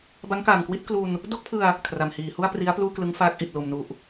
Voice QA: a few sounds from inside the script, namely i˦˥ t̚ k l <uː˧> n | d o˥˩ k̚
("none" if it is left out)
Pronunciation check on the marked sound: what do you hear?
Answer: u˧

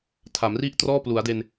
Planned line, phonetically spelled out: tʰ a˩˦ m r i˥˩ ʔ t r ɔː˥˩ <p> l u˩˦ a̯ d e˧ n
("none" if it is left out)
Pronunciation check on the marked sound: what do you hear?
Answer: p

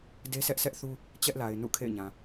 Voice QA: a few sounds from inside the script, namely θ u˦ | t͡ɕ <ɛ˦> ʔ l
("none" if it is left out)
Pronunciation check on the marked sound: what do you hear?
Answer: ɛ˦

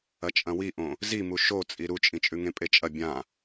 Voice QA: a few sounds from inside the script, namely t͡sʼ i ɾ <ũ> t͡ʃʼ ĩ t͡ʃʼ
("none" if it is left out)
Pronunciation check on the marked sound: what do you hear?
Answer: u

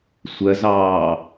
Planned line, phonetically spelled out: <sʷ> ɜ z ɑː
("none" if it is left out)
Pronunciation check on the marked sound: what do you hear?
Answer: sʷ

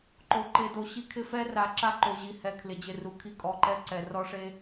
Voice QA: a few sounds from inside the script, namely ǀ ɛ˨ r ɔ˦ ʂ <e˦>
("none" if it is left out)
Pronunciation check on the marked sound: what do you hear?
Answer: e˦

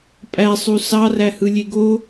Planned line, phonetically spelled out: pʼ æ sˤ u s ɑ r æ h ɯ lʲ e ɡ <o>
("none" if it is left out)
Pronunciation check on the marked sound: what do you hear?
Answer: o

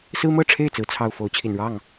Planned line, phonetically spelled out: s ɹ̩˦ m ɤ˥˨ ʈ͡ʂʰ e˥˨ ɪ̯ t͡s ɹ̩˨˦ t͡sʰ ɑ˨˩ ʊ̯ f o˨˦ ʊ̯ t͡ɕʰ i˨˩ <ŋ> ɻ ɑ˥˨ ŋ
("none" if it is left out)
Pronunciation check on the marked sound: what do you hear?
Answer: n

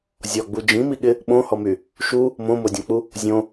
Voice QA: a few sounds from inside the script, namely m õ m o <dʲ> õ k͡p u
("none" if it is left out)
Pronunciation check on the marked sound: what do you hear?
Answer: dʲ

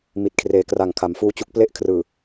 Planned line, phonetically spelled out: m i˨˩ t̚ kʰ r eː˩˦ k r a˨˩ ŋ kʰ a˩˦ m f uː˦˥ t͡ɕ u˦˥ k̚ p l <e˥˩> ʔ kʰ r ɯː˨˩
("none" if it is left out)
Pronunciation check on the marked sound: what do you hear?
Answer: e˥˩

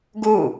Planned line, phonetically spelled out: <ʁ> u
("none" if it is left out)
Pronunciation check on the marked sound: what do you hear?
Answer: ɡ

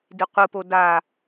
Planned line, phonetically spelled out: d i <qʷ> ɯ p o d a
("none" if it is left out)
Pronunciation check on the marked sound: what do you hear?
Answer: qʷ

